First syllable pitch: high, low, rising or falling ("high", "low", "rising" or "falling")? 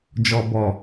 low